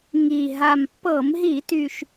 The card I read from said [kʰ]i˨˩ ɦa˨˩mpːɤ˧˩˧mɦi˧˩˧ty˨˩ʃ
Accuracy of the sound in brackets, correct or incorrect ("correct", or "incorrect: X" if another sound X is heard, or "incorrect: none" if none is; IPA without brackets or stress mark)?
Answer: incorrect: ŋ